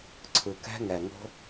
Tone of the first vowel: low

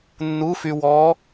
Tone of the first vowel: rising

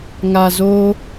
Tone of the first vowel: low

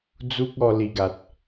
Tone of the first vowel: high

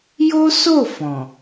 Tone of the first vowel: high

